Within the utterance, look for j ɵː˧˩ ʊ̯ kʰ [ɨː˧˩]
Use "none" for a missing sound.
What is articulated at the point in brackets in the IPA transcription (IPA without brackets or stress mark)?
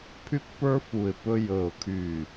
yː˧˩